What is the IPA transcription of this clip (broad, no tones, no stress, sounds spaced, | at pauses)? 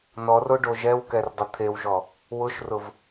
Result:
n ɔ r o ɖ o ʒ ɛ w k ɛ r dˤ ʊ t̪ʰ e w ʒ ɔ | w ʊ ʃ r ʊ v